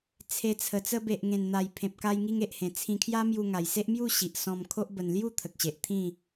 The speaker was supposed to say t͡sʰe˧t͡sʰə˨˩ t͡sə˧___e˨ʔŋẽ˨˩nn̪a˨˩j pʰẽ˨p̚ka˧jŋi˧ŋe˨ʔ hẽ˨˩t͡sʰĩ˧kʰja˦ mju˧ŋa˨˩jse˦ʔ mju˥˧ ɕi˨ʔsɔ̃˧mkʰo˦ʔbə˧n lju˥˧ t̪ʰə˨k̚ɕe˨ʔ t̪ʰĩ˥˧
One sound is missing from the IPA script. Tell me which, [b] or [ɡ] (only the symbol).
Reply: b